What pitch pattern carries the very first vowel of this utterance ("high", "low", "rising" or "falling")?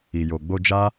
low